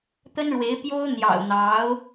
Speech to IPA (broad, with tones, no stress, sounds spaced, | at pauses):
t̪ ə˥ n ɻ w e˧˥ ɪ̯ p j o˥ ʊ̯ n̪ j ɑ̰˨˩ ʊ̯ n̪ ɑ˧˥ ʊ̯